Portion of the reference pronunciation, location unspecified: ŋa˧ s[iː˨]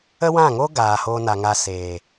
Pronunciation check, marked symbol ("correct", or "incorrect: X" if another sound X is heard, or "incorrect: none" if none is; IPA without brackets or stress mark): incorrect: eː˨